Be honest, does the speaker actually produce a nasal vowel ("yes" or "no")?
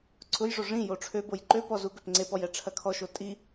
yes